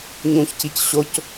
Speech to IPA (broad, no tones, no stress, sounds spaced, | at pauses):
ɲ ũ ç c i c ɕ o c